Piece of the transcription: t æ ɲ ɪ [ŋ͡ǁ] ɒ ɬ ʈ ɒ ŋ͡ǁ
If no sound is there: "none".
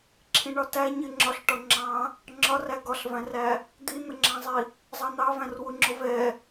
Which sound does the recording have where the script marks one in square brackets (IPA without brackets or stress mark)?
ŋ͡ǁ